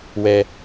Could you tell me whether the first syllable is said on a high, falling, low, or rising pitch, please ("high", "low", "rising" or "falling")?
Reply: low